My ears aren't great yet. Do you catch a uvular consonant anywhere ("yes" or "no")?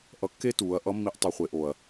yes